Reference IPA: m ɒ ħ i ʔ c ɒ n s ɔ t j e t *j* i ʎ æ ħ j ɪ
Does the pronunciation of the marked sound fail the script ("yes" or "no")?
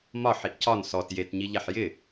yes